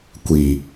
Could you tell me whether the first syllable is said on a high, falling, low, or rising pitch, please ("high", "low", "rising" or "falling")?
low